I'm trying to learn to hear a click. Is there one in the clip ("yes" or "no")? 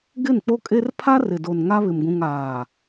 no